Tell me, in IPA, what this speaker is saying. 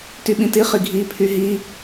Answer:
t y ɓ ĩ t i χ i ɡʱ i pʰ y ɦ i

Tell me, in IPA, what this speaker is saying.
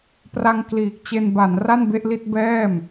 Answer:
p r a˧ ŋ k l iː˨˩ k̚ t͡ɕ e˧ n b a˩˦ n r a˥˩ n b e˥˩ ʔ l i˥˩ t̚ b ɛː˥˩ m

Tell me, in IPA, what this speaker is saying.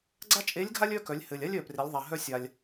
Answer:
ɡ͡ǀ a˥ t͡ʃʼ e˧˥ lʲ ɡʱ a˥ lʲ œ˥ k œ˩˧ lʲ h ɘ˩ lʲ a˥ lʲ œ˩ p r e˩˧ lʲ ðˤ a˩ ɦ œ˧ sʲ a˩ lʲ

